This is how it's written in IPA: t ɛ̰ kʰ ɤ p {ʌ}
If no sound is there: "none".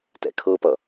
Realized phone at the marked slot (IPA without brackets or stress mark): ʌ